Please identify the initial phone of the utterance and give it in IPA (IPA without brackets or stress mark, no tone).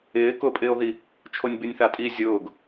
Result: ɪː